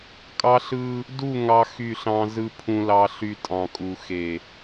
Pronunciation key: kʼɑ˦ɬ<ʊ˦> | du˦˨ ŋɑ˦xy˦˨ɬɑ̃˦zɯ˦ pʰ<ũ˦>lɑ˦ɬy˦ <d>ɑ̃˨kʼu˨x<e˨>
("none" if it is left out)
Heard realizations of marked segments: ɯ˦, ũ˦, tʼ, e˨

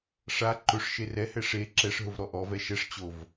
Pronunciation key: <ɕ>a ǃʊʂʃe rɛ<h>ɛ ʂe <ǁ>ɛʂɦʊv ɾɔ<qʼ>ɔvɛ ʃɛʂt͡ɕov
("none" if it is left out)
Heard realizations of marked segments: ʂ, h, ǁ, ʔ

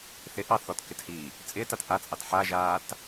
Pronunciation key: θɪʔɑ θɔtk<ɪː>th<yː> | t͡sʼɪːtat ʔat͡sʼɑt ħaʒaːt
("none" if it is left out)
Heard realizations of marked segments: ɪ, iː

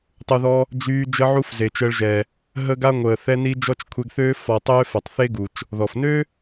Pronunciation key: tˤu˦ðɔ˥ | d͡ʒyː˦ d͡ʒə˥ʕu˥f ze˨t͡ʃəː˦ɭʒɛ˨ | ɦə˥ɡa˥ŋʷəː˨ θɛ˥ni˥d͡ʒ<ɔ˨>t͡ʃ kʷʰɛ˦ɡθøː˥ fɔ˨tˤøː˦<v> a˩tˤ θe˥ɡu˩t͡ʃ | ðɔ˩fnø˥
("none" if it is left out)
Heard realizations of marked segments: ɔ˥, f

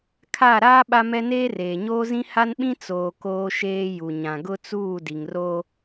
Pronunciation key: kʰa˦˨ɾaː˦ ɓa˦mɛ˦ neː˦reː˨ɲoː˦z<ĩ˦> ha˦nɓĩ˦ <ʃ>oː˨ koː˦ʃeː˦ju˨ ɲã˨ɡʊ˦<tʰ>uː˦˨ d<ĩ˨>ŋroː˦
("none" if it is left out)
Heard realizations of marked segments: ĩ˦, t͡s, t͡s, i˨

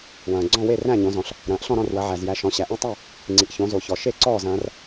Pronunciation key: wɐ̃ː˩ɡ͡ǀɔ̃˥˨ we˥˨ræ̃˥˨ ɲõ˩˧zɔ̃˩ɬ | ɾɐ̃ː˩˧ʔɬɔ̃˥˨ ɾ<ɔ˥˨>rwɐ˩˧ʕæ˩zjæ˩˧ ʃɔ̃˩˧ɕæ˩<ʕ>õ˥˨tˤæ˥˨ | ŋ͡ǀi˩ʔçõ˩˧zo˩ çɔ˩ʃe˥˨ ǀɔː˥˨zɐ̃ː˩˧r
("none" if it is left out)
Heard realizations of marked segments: ɔ̃˥˨, ʔ

